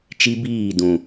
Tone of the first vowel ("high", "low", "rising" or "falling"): high